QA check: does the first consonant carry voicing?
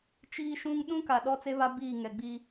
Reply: no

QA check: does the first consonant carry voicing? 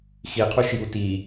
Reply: no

